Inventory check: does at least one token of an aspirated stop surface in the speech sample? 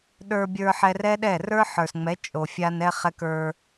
no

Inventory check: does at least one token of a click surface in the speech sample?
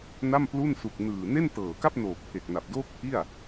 no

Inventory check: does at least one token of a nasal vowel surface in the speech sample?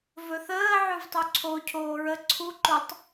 no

